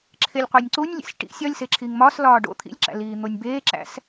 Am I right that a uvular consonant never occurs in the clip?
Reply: no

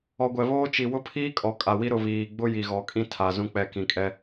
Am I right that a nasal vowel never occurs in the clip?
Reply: no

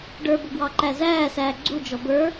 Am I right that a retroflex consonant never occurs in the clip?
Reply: no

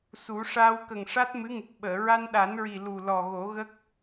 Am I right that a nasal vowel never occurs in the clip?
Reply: yes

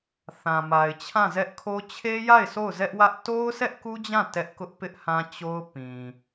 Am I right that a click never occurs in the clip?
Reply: yes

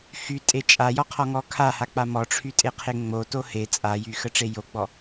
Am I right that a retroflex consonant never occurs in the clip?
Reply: no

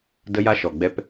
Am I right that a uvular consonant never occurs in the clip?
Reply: yes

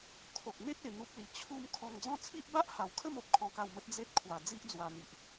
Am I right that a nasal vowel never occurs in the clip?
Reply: no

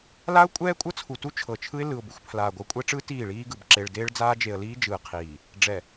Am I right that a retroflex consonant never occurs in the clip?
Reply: no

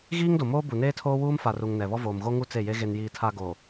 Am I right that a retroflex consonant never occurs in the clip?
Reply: yes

